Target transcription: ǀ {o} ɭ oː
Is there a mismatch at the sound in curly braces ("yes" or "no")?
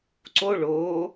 no